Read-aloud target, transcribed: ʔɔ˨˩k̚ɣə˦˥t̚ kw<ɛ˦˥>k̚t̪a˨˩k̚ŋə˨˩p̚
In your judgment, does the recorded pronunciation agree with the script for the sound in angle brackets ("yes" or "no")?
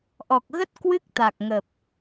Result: no